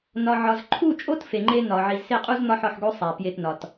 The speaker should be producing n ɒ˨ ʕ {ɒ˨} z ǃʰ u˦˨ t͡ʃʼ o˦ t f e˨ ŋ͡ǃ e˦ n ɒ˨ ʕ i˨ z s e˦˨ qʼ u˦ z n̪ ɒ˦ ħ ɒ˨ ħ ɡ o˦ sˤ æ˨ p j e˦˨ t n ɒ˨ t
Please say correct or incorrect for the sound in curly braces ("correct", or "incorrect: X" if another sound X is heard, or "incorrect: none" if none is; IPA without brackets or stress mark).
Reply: correct